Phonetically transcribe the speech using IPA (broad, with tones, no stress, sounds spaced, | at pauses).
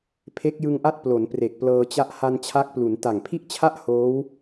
pʰ e˦˥ k̚ j ɯ˧ ŋ ʔ a˥˩ t̚ p l o˩˦ n p r e˨˩ k̚ p l ɤː˧ t͡ɕ a˥˩ ʔ h a˧ n t͡ɕʰ a˦˥ k̚ p l u˩˦ n t a˨˩ ŋ pʰ i˥˩ ʔ t͡ɕʰ a˥˩ ʔ h oː˦˥ w